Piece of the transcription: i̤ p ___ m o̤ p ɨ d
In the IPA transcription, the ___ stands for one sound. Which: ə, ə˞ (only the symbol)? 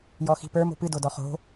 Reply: ə˞